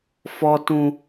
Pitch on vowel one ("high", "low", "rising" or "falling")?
high